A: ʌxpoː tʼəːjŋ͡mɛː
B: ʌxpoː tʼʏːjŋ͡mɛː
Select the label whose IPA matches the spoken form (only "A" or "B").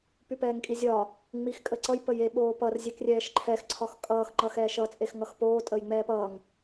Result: A